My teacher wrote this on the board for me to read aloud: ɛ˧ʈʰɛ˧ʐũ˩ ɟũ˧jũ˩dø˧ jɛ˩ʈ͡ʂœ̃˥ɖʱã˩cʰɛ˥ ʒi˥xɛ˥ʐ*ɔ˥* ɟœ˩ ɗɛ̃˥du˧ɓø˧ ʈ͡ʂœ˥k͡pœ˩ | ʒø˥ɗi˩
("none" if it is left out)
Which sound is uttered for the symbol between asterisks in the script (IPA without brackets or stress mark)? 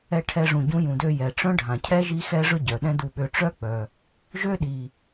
ɵ˥